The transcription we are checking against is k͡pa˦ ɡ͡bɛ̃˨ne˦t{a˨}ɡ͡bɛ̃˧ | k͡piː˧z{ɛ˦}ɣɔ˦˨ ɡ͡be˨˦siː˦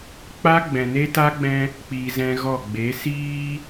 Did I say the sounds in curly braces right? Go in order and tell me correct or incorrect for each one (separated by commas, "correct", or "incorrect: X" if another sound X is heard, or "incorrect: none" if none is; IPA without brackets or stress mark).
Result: incorrect: a˦, incorrect: ɛ̃˦